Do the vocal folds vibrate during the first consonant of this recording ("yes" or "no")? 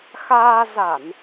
no